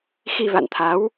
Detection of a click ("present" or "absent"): absent